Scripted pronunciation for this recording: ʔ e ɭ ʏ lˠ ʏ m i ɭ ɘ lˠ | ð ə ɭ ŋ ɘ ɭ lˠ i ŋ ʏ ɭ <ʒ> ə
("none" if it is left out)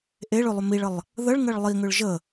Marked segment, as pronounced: ʒ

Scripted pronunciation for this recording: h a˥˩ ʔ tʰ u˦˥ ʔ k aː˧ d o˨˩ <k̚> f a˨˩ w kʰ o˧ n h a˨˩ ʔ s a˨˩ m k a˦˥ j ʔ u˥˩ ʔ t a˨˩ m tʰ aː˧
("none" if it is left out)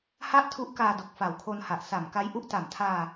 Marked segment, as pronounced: k̚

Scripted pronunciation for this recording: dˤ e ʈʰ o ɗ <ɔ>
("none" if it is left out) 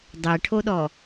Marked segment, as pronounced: ɔ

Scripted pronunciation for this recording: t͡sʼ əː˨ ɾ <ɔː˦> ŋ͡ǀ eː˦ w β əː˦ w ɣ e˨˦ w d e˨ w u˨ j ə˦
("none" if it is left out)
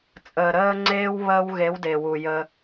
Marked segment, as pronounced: əː˦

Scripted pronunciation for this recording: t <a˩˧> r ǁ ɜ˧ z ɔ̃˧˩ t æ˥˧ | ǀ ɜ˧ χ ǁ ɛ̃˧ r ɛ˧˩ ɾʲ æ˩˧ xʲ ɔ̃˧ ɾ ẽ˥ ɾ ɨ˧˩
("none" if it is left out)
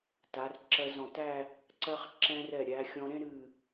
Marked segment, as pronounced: a˩˧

